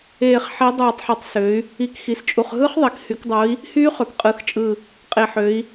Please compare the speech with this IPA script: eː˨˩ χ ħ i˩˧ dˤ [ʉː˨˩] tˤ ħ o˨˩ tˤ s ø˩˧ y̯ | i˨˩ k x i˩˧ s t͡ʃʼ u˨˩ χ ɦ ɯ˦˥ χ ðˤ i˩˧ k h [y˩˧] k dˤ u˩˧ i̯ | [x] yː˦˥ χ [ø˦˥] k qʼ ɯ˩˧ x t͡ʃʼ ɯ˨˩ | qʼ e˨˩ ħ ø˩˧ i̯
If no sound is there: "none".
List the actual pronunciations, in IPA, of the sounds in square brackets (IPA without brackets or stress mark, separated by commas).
uː˨˩, y˩˧, h, ø˩˧